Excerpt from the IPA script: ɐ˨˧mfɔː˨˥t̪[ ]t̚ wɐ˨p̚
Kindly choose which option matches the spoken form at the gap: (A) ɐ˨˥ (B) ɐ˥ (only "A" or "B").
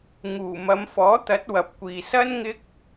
A